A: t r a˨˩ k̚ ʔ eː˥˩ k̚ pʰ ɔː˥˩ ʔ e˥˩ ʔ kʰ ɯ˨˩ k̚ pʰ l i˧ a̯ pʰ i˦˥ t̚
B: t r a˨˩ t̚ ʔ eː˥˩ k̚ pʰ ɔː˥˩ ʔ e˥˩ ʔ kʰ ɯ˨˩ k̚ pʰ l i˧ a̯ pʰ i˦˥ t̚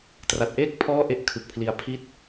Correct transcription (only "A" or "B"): B